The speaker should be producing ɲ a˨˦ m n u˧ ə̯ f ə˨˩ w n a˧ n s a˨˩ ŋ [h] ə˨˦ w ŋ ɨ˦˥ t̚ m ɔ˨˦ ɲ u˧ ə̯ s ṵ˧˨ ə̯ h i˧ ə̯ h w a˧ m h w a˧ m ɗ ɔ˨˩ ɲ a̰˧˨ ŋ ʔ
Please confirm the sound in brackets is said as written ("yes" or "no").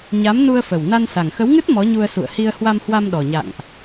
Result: no